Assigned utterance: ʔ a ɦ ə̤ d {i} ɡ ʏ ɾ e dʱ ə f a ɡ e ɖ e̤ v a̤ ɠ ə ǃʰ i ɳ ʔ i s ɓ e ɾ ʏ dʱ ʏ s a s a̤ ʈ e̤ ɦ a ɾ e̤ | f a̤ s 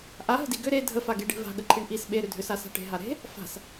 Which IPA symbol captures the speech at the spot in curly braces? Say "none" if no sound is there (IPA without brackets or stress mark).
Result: i